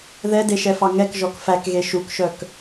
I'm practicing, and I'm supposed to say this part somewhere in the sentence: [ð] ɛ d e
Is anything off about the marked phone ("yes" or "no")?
no